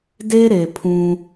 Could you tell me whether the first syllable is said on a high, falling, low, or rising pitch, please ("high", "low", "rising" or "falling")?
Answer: high